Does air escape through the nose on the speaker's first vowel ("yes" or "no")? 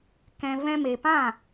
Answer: yes